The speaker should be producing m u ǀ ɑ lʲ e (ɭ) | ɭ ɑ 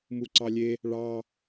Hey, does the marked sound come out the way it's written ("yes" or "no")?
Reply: no